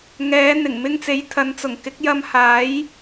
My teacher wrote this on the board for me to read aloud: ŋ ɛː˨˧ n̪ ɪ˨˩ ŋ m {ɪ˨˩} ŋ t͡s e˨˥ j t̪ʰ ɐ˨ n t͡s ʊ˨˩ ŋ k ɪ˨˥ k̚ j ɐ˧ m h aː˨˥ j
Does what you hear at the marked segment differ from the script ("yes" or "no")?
yes